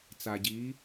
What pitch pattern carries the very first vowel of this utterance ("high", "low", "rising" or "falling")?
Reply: low